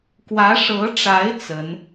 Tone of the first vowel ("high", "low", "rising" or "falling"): rising